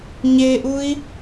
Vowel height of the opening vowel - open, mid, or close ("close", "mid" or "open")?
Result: mid